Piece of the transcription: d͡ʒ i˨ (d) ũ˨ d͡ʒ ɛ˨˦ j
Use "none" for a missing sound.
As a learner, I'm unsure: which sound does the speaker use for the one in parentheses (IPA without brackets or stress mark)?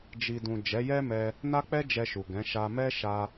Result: d